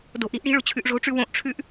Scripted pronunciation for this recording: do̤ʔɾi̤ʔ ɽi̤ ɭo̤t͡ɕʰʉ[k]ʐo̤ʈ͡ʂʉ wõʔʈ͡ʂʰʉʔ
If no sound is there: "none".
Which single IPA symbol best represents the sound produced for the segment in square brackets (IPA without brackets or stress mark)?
ʔ